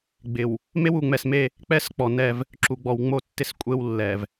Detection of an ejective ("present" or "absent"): present